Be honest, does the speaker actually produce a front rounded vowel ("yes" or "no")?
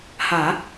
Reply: no